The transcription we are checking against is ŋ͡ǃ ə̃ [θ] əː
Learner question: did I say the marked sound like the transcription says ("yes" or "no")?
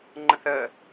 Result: yes